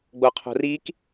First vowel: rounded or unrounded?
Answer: rounded